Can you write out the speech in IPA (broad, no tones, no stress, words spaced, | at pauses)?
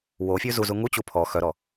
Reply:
wofʲʉ zuzu ŋut͡ɕu pʰɔ xœɾɔ